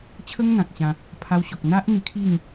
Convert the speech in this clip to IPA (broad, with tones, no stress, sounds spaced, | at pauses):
t͡ɕʰ ə˦ ŋ n̪ ã˨ k̚ ɕ ã˧ | pʰ a˧ w ɕ ɔ˨ k̚ n̪ a˦ ʔ n̪ i˧ kʰ i˥˧ ŋ